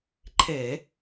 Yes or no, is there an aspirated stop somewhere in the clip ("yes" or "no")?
yes